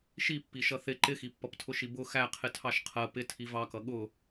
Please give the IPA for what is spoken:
ʃ i pː i ʃ ʌ θ ɪ ǃ ɪ x i pː ʌ p tʰ ʊ ʃ i b ʊ x æ qʰ ɪ tʰ ɑ ʃ qʰ ɜ p ɪ tʰ i v ɑ k ʌ ɠ ʊ

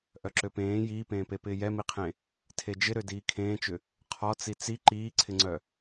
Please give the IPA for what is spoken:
ʔ œ ǁ ø p ẽː j iː p ẽː p e p ɪː j ɛ m i qʰ ẽ | tʰ e d͡ʒ ɪ ɾ ø d iː kʰ ẽː t͡ʃ ʏ | qʰ ɔ t͡s i t͡s i ǃ iː ǀʰ ɪ ŋ͡ǀ œ

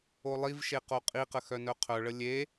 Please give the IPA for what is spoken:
o lˠ i v ʃ e q o qʼ i q ə x œ n œ qʰ œ ɭ ə lʲ e

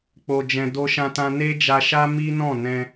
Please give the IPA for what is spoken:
k͡p o˧ d͡ʒ ɛ̃˧ d o˧ ʃ ã˧ t ã˧ n e˦ d͡ʒ a˧ ʃ a˦ m i˦ n ɔ̃˦˨ n ɛ̃˧

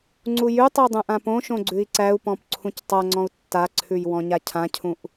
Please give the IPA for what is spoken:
ŋ͡ǀ u j ʉ tˤ o dˤ ũ ʔ ã p õ ʃ õ ɡ͡ǀ ʉ i̯ ǀ æ u̯ p ɔ̃ p ǀʰ ũ c tˤ a ŋ͡ǀ ɔ̃ u̯ tː a ǀʰ ʉ j w ɔ̃ ɲ a cʰ ã cʰ ũ ʔ

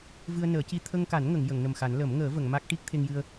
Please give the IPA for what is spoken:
v ɨ˧ ə̯ n əː˨˩˦ c i˧ t̪ʰ ə˧ ŋ k a˨˩˦ n ŋ ə˨˩˨ ŋ j ə˨˩˨ ŋ n ə˨˩ m x a˨˩˦ n l ə˨˩˦ m ŋ əː˨˩˦ v ə˨˩˨ ŋ m a˦˥ k̚ ʈ i˦˥ k̚ t̪ʰ e˧ ŋ j ɨ˧ ə̯

